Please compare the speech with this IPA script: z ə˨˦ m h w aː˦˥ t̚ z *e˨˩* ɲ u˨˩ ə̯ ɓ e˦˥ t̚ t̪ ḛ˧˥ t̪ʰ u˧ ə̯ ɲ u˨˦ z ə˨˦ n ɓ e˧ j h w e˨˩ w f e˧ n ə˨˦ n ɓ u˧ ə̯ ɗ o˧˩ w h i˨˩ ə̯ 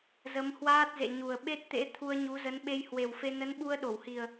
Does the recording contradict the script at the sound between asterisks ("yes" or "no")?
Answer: yes